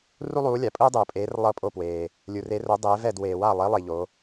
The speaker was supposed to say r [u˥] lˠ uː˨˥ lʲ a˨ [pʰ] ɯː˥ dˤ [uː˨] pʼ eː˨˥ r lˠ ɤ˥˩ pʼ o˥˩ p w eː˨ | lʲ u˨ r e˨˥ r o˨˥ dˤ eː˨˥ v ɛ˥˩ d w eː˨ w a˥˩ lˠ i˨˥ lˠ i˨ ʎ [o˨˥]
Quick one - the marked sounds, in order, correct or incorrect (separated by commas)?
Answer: correct, incorrect, correct, correct